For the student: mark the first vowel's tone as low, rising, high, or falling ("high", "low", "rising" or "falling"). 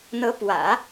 rising